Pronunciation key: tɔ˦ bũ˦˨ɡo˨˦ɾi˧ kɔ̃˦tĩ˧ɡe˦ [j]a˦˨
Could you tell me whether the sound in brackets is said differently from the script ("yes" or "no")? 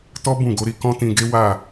yes